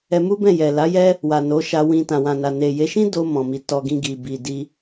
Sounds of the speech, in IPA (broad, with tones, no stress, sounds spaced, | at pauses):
ɛ˧ m u˦ b ɛ̃˦˨ j ɛ˨ l a˨˦ j ɛ˦ | w a˨ n o˨˦ ʃ a˧ w ĩ˧ t ã˨ w ã˨ n a˨ n e˨ j e˨˦ ʃ ĩ˦ d o˧ m ɔ̃˨ m i˨˦ t ɔ˧ ɡ ĩ˧ ɡ i˨ b i˨ d i˧